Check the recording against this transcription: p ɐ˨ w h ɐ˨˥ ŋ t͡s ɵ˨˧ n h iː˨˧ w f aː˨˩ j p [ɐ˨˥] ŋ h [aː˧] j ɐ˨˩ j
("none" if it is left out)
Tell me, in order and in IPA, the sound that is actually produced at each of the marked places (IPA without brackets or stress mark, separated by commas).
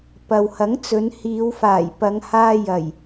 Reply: ɐ˨˧, aː˧